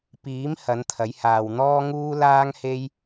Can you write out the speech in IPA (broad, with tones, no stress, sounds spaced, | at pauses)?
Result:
p iː˨˥ m h ɐ˨˥ n t̪ʰ ɐ˨˥ j h aː˨ w n̪ ɔː˥ ŋ uː˥ l aː˥ ŋ h e˥ j